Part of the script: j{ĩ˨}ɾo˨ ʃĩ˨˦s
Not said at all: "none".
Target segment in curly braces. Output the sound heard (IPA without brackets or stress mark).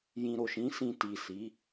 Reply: ĩ˨